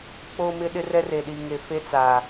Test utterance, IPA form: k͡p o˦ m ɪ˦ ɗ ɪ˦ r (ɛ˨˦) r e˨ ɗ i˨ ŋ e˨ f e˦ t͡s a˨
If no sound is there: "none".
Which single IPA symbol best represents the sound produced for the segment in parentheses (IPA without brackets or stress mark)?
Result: ɛ˦